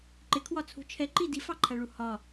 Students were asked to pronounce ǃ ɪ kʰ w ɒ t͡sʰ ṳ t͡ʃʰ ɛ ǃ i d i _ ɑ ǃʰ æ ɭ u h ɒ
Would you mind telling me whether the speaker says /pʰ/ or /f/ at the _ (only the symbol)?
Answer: f